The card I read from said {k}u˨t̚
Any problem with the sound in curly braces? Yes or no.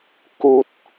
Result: no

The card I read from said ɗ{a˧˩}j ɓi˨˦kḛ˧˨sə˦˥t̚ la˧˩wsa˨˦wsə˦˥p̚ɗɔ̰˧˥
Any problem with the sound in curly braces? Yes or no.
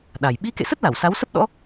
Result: yes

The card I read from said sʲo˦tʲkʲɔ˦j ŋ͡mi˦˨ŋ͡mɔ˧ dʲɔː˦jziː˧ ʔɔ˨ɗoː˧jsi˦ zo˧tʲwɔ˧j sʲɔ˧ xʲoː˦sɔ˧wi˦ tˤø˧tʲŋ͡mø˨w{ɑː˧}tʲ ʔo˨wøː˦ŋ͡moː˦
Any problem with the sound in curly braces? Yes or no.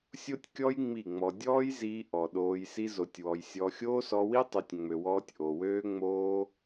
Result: yes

